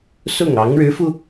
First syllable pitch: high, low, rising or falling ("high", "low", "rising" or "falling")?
falling